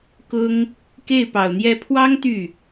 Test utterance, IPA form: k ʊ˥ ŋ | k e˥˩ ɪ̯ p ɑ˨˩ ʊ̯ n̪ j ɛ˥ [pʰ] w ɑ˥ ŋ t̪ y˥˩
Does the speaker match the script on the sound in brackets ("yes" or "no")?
yes